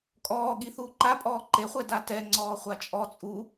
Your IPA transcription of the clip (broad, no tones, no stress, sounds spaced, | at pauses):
kʼ ɔː ɠ i θ uː ǃ a pʼ ɔː ǃ e χʷ ɛ d a t ɛ ŋ͡ǀ ɔː χʷ a t͡ʃʼ ɔ t͡sʼ u